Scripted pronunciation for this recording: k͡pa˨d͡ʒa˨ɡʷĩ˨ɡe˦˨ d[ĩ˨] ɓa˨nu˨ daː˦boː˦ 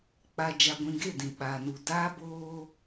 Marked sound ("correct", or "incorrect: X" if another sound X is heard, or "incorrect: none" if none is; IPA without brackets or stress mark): correct